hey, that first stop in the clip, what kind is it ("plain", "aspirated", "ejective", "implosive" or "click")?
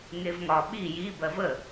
implosive